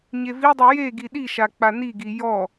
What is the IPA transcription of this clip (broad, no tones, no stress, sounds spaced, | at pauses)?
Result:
ɲ e v i dˤ i j e ɡ i ɗ i ʃ a k͡p a n i ɡ i j ɔ